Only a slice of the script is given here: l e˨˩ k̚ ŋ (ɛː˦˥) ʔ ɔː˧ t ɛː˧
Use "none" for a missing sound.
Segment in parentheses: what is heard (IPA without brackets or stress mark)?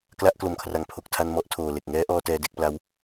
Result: ɛː˦˥